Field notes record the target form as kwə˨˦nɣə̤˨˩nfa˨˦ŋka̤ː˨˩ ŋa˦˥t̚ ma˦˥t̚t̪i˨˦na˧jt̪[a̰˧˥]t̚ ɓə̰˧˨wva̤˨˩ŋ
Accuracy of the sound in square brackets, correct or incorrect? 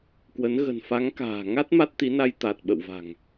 incorrect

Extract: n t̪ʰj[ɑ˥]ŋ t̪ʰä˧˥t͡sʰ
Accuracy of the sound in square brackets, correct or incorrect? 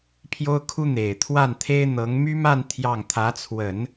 incorrect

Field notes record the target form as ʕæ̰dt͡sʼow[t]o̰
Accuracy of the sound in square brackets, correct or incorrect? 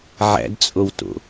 correct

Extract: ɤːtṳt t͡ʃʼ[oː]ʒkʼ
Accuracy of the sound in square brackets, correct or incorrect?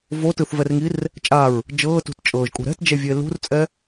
incorrect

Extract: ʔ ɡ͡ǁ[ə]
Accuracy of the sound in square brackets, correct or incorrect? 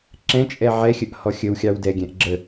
correct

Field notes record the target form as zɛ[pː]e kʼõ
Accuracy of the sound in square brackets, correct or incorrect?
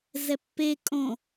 correct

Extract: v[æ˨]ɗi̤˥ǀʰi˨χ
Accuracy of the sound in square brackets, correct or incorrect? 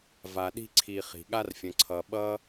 incorrect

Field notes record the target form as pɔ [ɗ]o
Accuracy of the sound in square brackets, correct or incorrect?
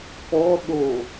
correct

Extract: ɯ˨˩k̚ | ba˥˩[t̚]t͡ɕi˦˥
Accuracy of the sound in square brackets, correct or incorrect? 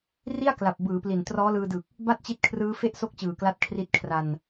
correct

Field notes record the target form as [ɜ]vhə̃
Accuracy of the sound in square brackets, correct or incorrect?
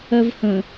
correct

